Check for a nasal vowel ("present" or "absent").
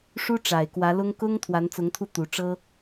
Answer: absent